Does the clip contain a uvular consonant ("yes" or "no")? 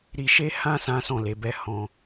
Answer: no